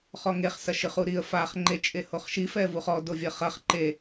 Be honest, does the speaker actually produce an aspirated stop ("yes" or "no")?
no